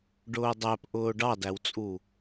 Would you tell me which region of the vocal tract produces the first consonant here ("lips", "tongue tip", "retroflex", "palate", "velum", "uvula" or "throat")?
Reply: retroflex